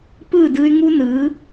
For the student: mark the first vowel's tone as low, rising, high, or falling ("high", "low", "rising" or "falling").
falling